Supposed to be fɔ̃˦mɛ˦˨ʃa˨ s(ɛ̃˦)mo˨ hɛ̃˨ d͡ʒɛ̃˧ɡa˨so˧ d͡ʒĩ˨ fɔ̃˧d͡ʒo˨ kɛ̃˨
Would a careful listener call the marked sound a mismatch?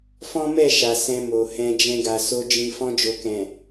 yes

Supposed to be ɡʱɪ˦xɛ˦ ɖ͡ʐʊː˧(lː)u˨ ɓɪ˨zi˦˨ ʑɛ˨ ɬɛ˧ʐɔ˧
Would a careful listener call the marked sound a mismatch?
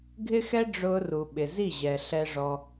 yes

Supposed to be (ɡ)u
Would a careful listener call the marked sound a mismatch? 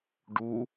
yes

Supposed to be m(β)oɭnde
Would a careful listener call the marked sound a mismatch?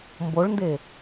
yes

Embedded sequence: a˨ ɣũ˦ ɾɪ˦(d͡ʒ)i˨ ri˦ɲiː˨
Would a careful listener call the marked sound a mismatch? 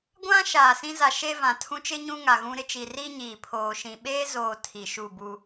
yes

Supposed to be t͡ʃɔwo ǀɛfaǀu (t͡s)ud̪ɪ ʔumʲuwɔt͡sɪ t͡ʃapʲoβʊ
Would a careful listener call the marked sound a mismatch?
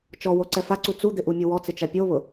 no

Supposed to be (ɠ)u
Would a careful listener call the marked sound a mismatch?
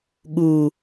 no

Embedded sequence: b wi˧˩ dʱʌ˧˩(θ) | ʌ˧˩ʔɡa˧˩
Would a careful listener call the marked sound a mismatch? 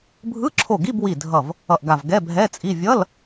yes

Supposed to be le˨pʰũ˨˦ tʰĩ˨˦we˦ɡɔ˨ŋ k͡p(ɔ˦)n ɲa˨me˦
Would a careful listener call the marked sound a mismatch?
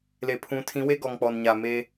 yes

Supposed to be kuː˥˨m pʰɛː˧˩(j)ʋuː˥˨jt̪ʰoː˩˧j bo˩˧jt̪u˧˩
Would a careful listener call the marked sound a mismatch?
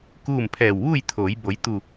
yes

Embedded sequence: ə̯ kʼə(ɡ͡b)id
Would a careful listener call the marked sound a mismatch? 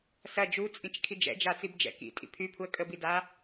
yes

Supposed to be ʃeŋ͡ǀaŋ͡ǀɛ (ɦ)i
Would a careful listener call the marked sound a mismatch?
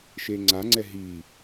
no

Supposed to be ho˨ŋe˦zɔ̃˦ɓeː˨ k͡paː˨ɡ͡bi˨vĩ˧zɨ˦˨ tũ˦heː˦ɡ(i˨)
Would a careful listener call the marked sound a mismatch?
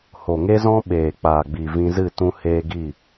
yes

